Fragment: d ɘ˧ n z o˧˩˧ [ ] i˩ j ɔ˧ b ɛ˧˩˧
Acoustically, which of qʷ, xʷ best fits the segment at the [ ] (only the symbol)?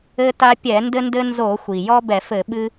xʷ